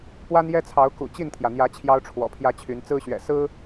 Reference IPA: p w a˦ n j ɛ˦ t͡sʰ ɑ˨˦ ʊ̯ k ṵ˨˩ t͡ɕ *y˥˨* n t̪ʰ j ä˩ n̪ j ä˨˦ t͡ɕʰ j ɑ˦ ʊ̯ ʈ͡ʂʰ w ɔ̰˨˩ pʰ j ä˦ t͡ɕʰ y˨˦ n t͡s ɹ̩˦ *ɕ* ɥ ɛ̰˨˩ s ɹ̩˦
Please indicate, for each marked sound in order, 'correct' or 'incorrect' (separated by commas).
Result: incorrect, correct